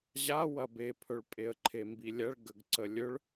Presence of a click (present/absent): present